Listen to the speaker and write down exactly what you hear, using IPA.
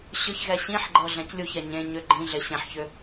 ɕ ʏ ç ɣ ɛ ɕ ĩ ħ ɡ͡ǃ ɤ ɮ ɛ̃ c lʲ u ç ɛ ɲ ẽ ɲ ʏ ɡ͡ǃ ĩ ɮ e ɕ ẽ ħ ç ʏ

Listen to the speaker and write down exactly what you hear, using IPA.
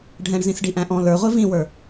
ɖʱ ɛ̃ ɳ z ĩ s ɖ i ʔ æ̃ ʔ ɔ̃ l ə˞ ʁʷ i v ĩ w ə˞

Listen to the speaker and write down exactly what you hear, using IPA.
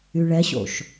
y ɭ ɛ ɕ o̰ ʃ

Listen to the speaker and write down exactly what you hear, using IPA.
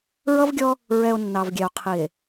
ɹ ʌ˦ v ɡʲ ɔ˦ | ɹ ɛ˨ o̯ nː ɑ˨ v ɡʲ ɛ˨ o̯ qʰ i˨ e̯

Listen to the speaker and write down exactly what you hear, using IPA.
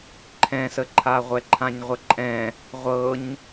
ǃʰ ɛ̃ s ə ǃʰ a ʁʷ ɛ ǃʰ ã ɲ ʁʷ ə ǃʼ ɛ̃ | ʁʷ ɤ ɲ

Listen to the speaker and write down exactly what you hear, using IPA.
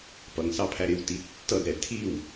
p ʌ ŋ s ɑ pʰ æ ɾ ɪ w t i tː ʌ d ɾ ɛ tʰ i w

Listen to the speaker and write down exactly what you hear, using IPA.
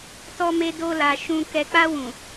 t ɔ˧ m e˧ d o˧ l a˨ ʃ ũ˧ k ɛ˨ k͡p a˧ w ũ˨

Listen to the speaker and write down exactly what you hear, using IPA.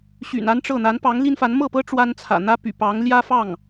ɕ y̰˨˩ n a˥ n ʈ͡ʂ ɤ˥˩ n̪ a˧˥ n p ɑ˧˥ ŋ l i˥ n f a˧˥ n m ɤ˥˩ p ɤ˥ ʈ͡ʂ w a˥ n t͡sʰ ä̰˨˩ n̪ ä˥ p y̰˨˩ p ɑ˧˥ ŋ l j ä˥ f ɑ˥˩ ŋ

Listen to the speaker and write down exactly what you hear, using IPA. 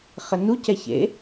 χ ɘ n u c ɛ ç ḛ

